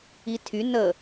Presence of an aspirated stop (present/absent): present